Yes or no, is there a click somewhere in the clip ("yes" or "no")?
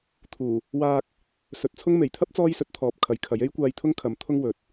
no